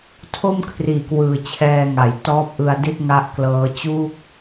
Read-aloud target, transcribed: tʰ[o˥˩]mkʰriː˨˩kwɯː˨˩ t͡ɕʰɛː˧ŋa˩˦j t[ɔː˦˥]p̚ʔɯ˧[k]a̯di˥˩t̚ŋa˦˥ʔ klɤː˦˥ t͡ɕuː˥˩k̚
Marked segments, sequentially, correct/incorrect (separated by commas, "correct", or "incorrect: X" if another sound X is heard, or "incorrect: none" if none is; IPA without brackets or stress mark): correct, correct, incorrect: none